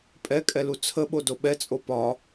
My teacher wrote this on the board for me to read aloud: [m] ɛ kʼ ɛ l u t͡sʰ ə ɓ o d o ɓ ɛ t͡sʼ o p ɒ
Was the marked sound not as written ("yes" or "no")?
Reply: yes